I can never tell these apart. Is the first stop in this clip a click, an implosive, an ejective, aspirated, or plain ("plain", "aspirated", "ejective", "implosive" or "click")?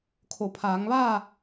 aspirated